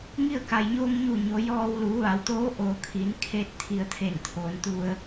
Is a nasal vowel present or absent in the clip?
absent